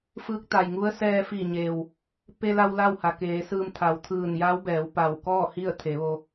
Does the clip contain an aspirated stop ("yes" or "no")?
yes